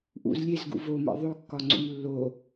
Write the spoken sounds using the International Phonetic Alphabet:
ʔṵz lʲezɡṵ vomḛ ðˤokːɒŋ͡ǀṵm lːo

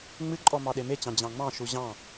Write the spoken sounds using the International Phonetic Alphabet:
ŋ͡mɨǃʼɔ mɑɗemet͡ɕɑ̃ d͡ʑɑ̃ŋ͡mɑ̃ʃu ʑɑ̃

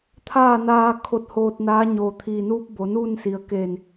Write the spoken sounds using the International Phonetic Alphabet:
t̪ʰaː˥˨naː˧ kʰo˧˩t̚ hoː˧t̚naː˧˥ ɲoː˩t̪ʰiː˩nuː˧p̚ bo˩˧nuː˥˨nsi˩ə̯ ke˧˩n

